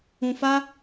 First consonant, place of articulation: labial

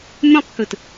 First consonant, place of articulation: labial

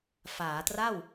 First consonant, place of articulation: labial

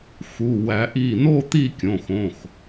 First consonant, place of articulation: velar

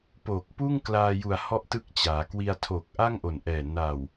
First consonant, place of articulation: labial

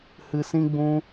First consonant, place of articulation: glottal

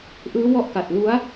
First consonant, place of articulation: glottal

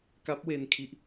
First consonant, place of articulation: velar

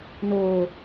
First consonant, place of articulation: alveolar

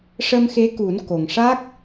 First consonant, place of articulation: retroflex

